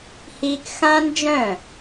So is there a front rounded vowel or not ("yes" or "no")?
yes